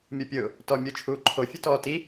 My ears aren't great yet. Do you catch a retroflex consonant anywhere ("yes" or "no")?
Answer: no